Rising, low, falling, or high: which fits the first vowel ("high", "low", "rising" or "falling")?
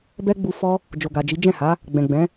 high